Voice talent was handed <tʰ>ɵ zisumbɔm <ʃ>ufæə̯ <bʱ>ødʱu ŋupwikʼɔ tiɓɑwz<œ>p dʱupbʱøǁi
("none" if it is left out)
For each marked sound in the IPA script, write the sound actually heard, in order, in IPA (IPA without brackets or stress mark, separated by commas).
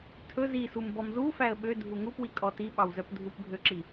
tʰ, z, ɓ, œ